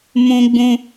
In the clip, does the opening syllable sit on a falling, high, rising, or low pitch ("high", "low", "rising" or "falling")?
high